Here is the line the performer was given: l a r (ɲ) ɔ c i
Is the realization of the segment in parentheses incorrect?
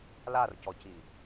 yes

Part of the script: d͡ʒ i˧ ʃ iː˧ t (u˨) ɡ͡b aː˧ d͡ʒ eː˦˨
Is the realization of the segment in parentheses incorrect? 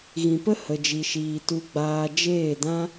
yes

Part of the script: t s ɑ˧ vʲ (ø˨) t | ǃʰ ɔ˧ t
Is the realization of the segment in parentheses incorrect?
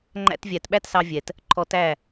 yes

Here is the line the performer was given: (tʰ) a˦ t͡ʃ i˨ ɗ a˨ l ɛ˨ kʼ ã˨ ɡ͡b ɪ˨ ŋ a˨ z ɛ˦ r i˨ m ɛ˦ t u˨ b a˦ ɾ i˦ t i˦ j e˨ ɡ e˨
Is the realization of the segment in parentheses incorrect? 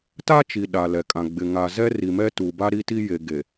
yes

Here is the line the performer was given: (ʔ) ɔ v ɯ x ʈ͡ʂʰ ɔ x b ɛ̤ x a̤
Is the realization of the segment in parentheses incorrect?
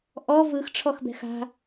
no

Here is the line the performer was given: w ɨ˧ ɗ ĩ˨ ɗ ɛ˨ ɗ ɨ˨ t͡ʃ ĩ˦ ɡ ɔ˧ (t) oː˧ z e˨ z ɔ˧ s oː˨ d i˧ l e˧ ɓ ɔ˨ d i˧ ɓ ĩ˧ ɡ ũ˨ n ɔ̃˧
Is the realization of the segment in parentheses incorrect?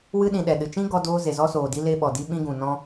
yes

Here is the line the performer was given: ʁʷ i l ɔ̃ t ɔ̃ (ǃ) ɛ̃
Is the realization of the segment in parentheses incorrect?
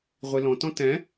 yes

